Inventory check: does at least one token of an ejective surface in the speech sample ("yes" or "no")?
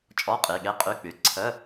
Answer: yes